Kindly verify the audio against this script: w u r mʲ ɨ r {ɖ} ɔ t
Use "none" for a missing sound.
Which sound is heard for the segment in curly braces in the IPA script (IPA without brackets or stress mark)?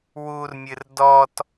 d